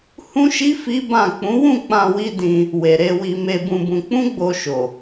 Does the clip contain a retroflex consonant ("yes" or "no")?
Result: no